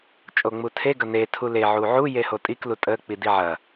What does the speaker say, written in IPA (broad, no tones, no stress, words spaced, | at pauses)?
t͡ʃʼoŋ͡mutʰe ɡɐne tʰule ʕuʕu jehotʼik lutʼə k͡pidiʕɐ